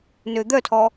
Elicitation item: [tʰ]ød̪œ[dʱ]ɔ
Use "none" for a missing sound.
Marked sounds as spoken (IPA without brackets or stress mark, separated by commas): n, tʰ